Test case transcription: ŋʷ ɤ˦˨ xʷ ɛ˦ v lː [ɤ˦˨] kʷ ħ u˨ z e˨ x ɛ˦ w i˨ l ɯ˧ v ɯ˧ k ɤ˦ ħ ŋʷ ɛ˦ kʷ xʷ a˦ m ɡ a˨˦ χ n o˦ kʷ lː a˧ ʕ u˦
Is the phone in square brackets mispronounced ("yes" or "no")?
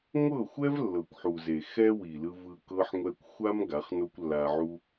yes